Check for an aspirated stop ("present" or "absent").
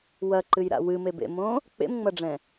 absent